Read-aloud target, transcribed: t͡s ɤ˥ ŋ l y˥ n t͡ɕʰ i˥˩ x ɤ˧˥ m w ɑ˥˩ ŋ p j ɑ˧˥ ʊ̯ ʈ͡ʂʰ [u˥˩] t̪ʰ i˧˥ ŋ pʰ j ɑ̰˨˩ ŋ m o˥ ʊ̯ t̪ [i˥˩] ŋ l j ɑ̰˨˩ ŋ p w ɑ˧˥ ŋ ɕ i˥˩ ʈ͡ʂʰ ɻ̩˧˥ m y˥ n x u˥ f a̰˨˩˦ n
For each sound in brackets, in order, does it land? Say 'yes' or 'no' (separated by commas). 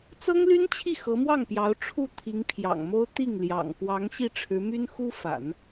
yes, yes